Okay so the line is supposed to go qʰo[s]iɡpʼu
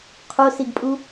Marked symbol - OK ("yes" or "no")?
yes